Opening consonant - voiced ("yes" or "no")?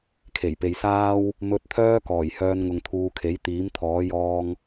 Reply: no